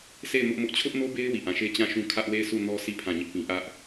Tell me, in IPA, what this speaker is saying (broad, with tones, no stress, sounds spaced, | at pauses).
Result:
s e˦˨ ɪ̯ m ʊ˦ ʔ m ʊ˦ ʔ t͡ɕʰ ʊ˦ ʔ n o˦ b e˦ ɪ̯ w i˦˨ ʔ ã˦˨ ʃ e˦ t͡ɕ ã˦˨ ʃ ũ˦ kʰ ä˦ ʔ w e˦˨ ɪ̯ s u˦˨ n ɔ˦ s i˦˨ pʰ ã˦˨ ɲ ɪ˦ ʔ p ĩ˦ ʔ ä˦ ʔ